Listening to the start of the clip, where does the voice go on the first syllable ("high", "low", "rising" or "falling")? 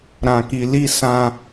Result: low